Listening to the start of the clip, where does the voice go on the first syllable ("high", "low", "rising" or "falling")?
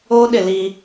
high